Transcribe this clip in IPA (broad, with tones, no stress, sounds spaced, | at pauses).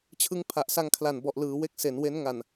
t͡ɕʰ ɯ˦˥ ŋ pʰ a˨˩ ʔ s a˧ ŋ kʰ l a˨˩ n b ɔ˨˩ ʔ l ɯː˩˦ w e˥˩ k̚ s e˩˦ n w e˦˥ n ŋ a˨˩ n